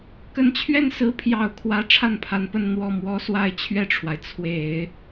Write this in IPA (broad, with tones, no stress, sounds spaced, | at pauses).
k ə˧˥ n t͡ɕʰ ɥ ɛ˥˩ n s ɹ̩˧˥ pʰ j ɑ˨˩ ʊ̯ kʰ w ä˧˥ ʈ͡ʂʰ a˥˩ n pʰ a˧˥ n p ə˥˧ n n̪ w ɔ˥˩ m w ɔ˥ s w a˥˧ ɪ̯ t͡ɕʰ ɥ ɛ˥˩ ʈ͡ʂʰ w a˩ ɪ̯ t͡sʰ w e˨˩˦ ɪ̯